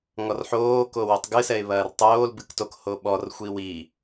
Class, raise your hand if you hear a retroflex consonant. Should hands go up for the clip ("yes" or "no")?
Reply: no